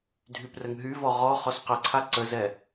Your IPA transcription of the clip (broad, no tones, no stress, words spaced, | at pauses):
dʱyprəŋɦyvɔ ʁɔ χɔsqəǀʰa ǀəzɛ